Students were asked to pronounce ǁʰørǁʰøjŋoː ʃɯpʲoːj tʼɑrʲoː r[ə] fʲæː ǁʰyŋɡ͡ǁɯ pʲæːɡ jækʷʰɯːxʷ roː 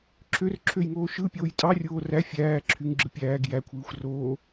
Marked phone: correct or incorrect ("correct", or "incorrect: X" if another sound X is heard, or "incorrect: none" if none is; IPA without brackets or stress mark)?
incorrect: æ